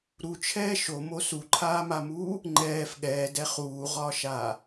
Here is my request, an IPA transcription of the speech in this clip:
ɾ u t͡ʃʰ ɛː ʃ o m o s u ǃʰ aː m a m uː | ŋ͡ǃ ɛː f ɠ ɛː d ɛ χ uː ʁ ɒː ʃ aː

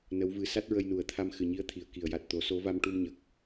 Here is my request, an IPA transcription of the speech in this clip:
n ə˧˥ w v ɨ˧˥ s a˦˥ t̚ ɹ ə˧ j n u˨˩˦ ə̯ t̪ʰ a˧ m x ɨ˨˩ ɲ i˧˥ ə̯ t̪ʰ i˨˩˨ ə̯ k i˨˩˨ ə̯ j a˨˩ t̚ t̪ o˨˩˦ s o˧˥ v a˧ m ʈ u˧ m ɲ ə˨˩ k̚

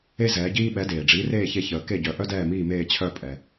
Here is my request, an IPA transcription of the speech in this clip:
e˥ z ɛː˩˥ ɟ iː˥ ɓ ɛ˩˥ d eː˩ ɖ͡ʐ iː˩˥ r eː˥˩ ç e˧ ç əː˩ k e˥˩ ɟ œ˩˥ ʔ œ˥ d ɛː˥˩ m iː˥˩ m eː˥˩ t͡ɕʰ œ˥˩ pʼ ɛ˩

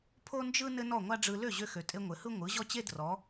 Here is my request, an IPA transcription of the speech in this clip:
pʰ o˥ n d͡ʒ ɯ˥ n ɘ˥ n ɔ˥˩ ŋʷ a˥ ɖ͡ʐ ɯ˧ l ø˥˩ ʑ ø˧ x ø˩ tʼ e˧ ŋʷ ɘ˩ h ɯ˥ ŋʷ ɯ˩˥ ʑ ɔ˥ t͡ɕ e˥ d r ɔ˩˥

